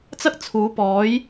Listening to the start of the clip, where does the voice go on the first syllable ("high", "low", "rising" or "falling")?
high